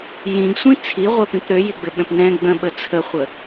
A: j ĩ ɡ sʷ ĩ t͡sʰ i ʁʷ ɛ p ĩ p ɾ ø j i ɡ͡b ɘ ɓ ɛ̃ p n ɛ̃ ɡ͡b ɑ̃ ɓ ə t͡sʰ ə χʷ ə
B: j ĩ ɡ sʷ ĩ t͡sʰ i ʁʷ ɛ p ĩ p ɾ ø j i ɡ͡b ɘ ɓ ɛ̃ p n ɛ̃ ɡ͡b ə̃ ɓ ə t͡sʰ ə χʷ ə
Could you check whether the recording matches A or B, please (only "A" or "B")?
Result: B